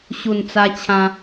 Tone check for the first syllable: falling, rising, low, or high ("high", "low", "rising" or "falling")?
low